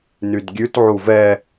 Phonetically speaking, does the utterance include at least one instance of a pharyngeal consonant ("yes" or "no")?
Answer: yes